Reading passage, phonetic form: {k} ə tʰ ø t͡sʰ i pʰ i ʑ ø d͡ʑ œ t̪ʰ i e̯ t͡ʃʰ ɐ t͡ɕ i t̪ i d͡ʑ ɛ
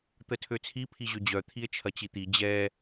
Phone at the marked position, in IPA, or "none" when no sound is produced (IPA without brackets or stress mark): t̪